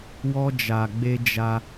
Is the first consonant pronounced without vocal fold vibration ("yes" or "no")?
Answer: no